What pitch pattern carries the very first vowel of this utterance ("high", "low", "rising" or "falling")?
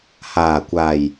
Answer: low